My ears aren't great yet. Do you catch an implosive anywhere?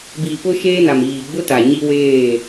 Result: no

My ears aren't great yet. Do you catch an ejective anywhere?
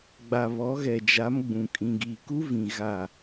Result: yes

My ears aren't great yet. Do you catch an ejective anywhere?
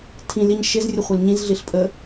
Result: yes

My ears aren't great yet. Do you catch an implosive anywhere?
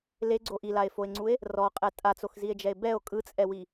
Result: no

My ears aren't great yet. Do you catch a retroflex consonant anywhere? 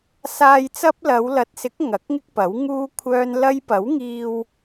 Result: no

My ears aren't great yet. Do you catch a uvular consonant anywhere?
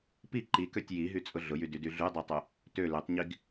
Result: no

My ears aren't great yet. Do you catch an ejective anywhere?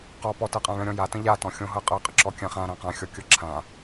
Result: yes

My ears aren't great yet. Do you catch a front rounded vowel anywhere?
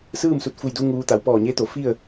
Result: no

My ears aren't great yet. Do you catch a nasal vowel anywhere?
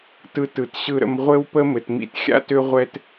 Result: no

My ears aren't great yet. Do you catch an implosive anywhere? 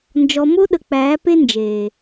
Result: yes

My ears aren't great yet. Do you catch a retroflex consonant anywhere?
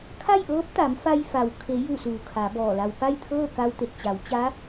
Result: no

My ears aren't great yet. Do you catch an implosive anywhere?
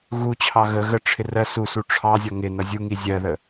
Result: no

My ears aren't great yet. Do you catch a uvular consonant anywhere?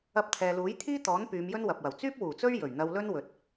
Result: no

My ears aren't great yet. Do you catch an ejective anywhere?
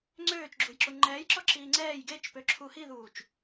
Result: no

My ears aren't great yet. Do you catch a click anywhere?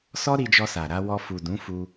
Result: no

